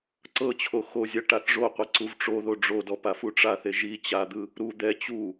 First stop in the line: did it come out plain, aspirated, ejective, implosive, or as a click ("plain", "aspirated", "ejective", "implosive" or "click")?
click